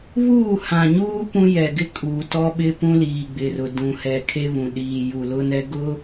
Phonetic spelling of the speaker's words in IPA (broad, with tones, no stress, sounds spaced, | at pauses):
β uː˦˨ h ã˨ ɲ uː˦ p ũ˦ j ɛ˨ ɡ ɪ˦ kʼ uː˨ t ɔ˦ ɓ ɪ˦ p ũ˦ l iː˨ ɡ͡b ɪ˨ r ʊ˨ d ũ˨ h ɛ˨ kʰ e˦ β ũ˨ ɗ iː˨ j u˨ l ʊ˦ n ɛ˦ ɡ ʊ˦